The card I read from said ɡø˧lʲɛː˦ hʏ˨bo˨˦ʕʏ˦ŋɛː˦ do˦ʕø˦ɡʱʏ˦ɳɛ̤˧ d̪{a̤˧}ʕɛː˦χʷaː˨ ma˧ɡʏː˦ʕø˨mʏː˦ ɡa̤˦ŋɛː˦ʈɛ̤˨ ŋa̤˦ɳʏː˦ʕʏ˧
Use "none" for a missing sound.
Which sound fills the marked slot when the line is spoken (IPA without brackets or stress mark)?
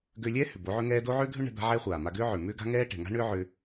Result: a̤˦